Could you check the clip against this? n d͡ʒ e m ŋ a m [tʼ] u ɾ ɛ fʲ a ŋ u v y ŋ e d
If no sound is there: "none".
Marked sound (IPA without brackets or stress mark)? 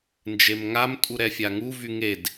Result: tʼ